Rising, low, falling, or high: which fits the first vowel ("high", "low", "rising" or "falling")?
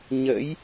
rising